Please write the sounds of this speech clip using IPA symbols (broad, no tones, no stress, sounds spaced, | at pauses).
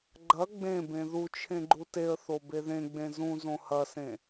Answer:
ɡ͡ǃ ɐ ɡ͡b ẽ b ẽ ð u t͡ʃʰ ẽ ɡ͡ǃ u t e ə̯ θ o b e ð ẽ ɡ͡b ẽ z ũ z õ h ɐ s ẽ